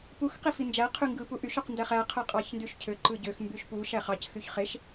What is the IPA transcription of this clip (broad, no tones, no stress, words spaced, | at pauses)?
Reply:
pux qifind͡ʒæ qʰyŋɡɯ puʔyʃ uqndæχæ qʰɯqʼɑçndyʃcʰø ǃɯɟøx mbyʃpu ʃæχɑc xyçχeʃ